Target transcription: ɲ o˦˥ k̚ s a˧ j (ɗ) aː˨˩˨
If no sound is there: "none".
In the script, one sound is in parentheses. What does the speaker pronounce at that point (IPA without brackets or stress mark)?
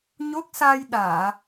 ɗ